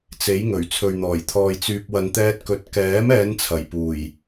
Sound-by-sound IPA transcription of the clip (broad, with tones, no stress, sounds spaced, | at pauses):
t͡s e˨˥ j ŋ ɵ˨˩ ɥ t͡sʰ ɵ˨ ɥ n̪ ɔː˨˩ j t̪ʰ ɔː˨ j t͡s yː˨ p̚ w ɐ˨ n t̪ ɛː˧ t̚ k ɵ˨˥ t̚ k ɛː˨˥ m ɛː˨˧ n t͡sʰ ɐ˨˩ j p uː˨˩ j